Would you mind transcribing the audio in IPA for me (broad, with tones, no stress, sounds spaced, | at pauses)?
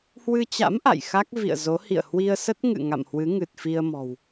h w ɨ˧ t͡ɕ a̰˧˥ m ʔ a̰˧˨ j x a˦˥ k̚ v ḭ˧˨ ə̯ z o˨˦ h ḭ˧˨ ə̯ h w i˧ ə̯ s ə˦˥ t̚ ŋ ɨ̰˧˨ ŋ a̰˧˨ m h w ɨ˨˦ ŋ ɨ˨˩ t̚ f i˧ ə̯ m ɔ̤˨˩ w